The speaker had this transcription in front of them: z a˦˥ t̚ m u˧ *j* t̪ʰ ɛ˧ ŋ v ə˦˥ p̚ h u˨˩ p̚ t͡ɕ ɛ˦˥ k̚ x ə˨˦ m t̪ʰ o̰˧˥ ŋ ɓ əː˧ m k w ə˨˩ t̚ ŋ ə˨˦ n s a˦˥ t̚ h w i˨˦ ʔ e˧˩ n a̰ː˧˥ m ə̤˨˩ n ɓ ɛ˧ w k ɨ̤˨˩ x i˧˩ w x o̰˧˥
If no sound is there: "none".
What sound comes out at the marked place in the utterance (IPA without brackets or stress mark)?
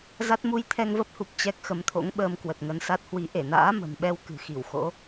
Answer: j